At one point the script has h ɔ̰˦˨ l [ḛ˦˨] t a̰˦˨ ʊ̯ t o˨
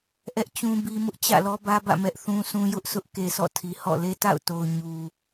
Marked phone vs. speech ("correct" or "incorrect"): incorrect